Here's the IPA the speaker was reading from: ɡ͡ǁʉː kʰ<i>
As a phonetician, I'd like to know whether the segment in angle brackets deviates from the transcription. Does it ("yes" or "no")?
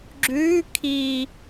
no